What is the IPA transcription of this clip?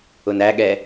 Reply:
ʊ n æ ɠ ɛ

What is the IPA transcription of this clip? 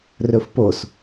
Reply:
r ɵ f p o s

